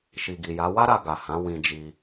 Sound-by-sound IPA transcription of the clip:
ʃ i˨ ɡ i˨ j a˨˦ w a˦ ɾ a˧ ɡ a˨ h ã˨˦ w ĩ˧ d͡ʒ i˧

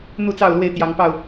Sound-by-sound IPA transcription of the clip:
n̪ u˥˨ t͡s ɑ˥˨ ʊ̯ l w e˥˨ ɪ̯ t̪ j ɑ˨˦ ŋ p ɑ˥˨ ʊ̯

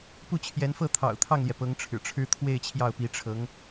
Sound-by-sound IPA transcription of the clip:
p u˥˩ t͡ɕʰ j ɛ˧˥ n f ɤ˥˩ t̪ʰ ɑ̰˨˩ ʊ̯ t̪ʰ ɑ˥˩ ŋ l j ɛ˩ p ɤ˧˥ ŋ ʈ͡ʂʰ ɻ̩˨˩ ʈ͡ʂʰ ɻ̩˥ t̪ʰ w e˥˧ ɪ̯ t͡ɕʰ j ɑ˥˩ ʊ̯ p i˧˥ ʈ͡ʂʰ ɤ˧˥ ŋ

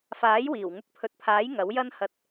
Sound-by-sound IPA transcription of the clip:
f aː˨˥ j w iː˨˩ w ŋ ʊ˧ k̚ pʰ ɵ˨˥ t̚ pʰ aː˨˥ j ŋ ɐ˨˥ w j ɐ˥ n h ɐ˧ t̚

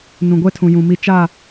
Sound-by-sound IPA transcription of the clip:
n ũ˨ ɡʷ ɛ˦ tʰ ũ˨ j ũ˨ m i˨ t͡ʃ a˦˨

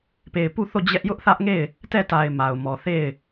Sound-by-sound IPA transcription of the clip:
p e˨ ɪ̯ p u˦˨ θ o˦˨ d͡ʑ ɛ˦ ʔ j ʊ˦ ʔ θ ä˦ ʔ ŋ e˦˨ ɪ̯ | t ɛ˦˨ t a˨ ɪ̯ m a˨ ʊ̯ m ɔ˨ θ e˦˨ ɪ̯

